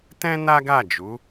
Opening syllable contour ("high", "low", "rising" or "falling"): high